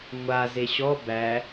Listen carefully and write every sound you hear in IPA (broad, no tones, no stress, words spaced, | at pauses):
ŋʷa zeɕɔ bæ